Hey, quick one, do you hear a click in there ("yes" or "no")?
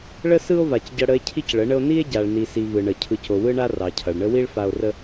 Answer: no